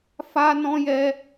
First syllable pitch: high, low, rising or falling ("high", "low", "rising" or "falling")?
high